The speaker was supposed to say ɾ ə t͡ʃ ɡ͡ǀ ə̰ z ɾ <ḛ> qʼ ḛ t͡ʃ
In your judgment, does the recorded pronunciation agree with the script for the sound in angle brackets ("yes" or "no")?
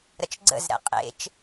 no